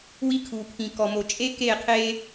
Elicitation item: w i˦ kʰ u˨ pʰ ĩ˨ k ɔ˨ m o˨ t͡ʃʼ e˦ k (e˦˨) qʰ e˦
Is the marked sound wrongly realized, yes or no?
no